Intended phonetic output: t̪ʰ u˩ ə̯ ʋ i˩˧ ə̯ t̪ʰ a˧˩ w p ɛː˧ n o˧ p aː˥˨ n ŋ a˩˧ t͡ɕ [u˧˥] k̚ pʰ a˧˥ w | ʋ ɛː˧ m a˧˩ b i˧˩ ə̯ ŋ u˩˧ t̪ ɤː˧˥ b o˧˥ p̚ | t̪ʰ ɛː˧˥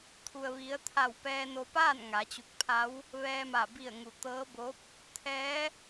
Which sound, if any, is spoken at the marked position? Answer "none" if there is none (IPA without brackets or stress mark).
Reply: u˧˩